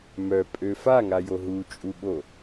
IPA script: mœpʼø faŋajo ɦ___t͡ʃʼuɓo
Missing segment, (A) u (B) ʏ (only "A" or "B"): A